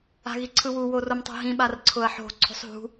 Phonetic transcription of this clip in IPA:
a̤ ɣ i ǀʰ ɯ w u w o r o m tˤ o̤ ɦ ĩ ɓ a r ǀʰ ʊ ɐ̯ ħ o̤ ǀʰ o̤ sˤ ɦ ṳ

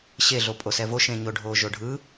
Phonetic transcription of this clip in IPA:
ɕ e ɮ o pʼ o s ɛ v o ʃ ẽ ɲ o ɖʱ o ʒ o ɖʱ ɯ

